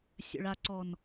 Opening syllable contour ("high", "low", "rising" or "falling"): low